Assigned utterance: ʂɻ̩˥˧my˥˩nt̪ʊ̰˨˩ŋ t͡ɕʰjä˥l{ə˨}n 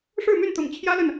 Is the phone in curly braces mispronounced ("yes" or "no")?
no